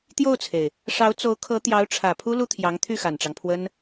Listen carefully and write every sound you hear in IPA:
t̪ j o˥˩ ʊ̯ t͡sʰ e˩ ɪ̯ | ʂ ɑ˧˥ ʊ̯ t͡s o˧˥ ʊ̯ kʰ ɤ˧˥ t̪ j ɑ˧˥ ʊ̯ ʈ͡ʂʰ ä˨˩ pʰ u˥ l u˥ t̪ʰ j ɑ˧˥ ŋ t̪ʰ y˥˩ x a˨˩ n ʈ͡ʂ ɑ˦ ŋ pʰ w ə˥ n

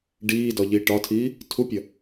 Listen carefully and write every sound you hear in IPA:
ɖ iː d ɒ ʎ iː ʈ ɒ tʰ iː | tʰ u pʲ ɐ

